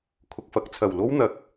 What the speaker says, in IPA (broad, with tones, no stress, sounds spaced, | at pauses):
kʰ ʊ˨ k̚ f ɐ˨˥ k̚ t͡sʰ ɐ˨˩ w l o˥ w n̪ ɐ˨˥ k̚